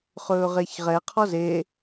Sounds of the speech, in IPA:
χɵːʁeçʁɛ qʰɔze

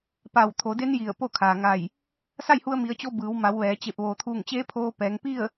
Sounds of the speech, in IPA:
pa˧˩w t̪ʰo˩˧de˧˥n ji˧˩ə̯po˥˨kʰaː˩ŋa˧˩j | sa˥˨jhu˧ə̯mi˩˧ə̯t͡ɕo˧ bɯː˩˧wma˩˧w ʋɛː˩˧t͡ɕe˧˩p̚ ʋoː˩t̪ʰuː˧˩ŋt͡ɕeː˧˥ pʰoː˧ pɛː˩˧ŋ pi˥˨ə̯

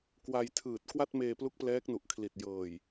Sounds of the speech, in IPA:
kwa˧jtʰɯː˨˩t̚ kwa˥˩t̚meː˧plu˦˥k̚ plɛː˦˥k̚nu˨˩ʔkʰli˨˩t̚ jɤː˨˩j

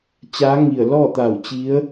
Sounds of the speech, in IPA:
t͡ɕaː˧˥ŋi˧˩ə̯ lɔː˥˨t̪a˧˩wt͡ɕi˧˥ə̯

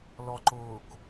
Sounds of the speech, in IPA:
lɔǃʊːk

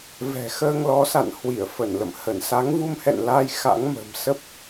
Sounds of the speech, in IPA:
vɛ̤˨˩xəː˧ŋlɔ˨˦sa̰˧˨n hwi˧˩ə̯fə˧˩nlə̰˧˨mhə˧˩n sa˨˦ŋvu˧mhɛ̰˧˨nlaː˧j xa̰˧˥ŋmə̤˨˩m sə˦˥p̚

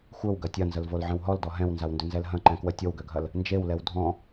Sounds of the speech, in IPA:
xʷœwɡɐ tʲɐnzəlvolʕə̃w ɦɔldɔ ɦɛ̃wnzawndʏnzɛl ɦɐ̃ǃɛ̃kwə tʲowɡøɡʱɐl | nd͡ʒewlɛw dʱɔ̃

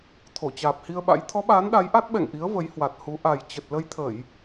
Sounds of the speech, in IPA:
t̪ʰo˧˩t͡ɕaː˨˩p̚hi˧ə̯ɓa̰˧˥j t̪ʰɔ˨˦ɓaː˨˦n ɗa˨˦jʔa˦˥t̚ ɓɛ̰˧˨ŋʔi˨˦ə̯ və˨˦jhwa˨˩t̚hu˨˦ ʔa˨˩j t͡ɕə˨˩t̚lə˧jt̪ʰə˧˩˨j

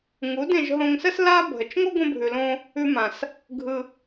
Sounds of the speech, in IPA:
ŋu˨˦dẽ˧ʒ ɦõ˧ŋsə˦s la˦ bʱə˨t͡ʃ ŋo˦ɡʷə̃˧bʱʉ˨lõ˧ | ʉ˧ mã˨s | ɡʱɯ˧

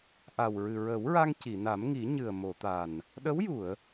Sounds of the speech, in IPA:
ʔa˨˩wɹɨ˨˩ɹə˨˩˦wɹa˧ŋ ci˨˩˨na˨˩˦mŋi˨˩˦ ɲɨ˨˩ə̯mo˨˩˨t̪a˨˩n | ɗə˧˥wju˨˩˨ə̯

